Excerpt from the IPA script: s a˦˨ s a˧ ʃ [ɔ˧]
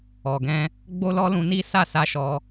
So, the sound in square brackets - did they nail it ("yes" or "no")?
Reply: yes